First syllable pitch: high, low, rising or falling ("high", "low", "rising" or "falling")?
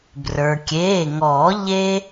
low